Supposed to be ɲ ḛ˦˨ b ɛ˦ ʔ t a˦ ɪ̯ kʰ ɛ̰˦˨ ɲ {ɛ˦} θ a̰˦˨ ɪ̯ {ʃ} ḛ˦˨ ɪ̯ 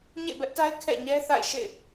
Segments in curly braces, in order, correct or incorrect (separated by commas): correct, correct